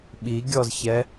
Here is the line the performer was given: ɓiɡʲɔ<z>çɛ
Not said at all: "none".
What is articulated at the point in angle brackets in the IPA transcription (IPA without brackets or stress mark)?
z